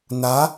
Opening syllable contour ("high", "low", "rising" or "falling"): rising